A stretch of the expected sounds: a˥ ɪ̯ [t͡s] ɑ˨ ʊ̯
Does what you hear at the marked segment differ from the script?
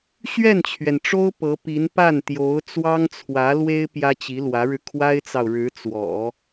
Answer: no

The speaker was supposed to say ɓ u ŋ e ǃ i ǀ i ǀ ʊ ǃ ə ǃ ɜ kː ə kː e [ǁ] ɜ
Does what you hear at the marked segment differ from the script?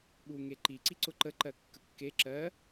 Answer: no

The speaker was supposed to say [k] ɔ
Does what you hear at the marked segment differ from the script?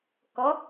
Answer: no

